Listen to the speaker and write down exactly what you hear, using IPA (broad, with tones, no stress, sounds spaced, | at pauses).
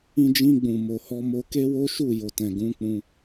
ĩ˧ d͡ʒ ĩ˧ ɡ͡b ũ˨ m o˨ h ɔ˧ m o˧ k e˦ w o˦ ʃ u˦˨ j o˨ t ɛ̃˨ ɡ ũ˨˦ k͡p ũ˧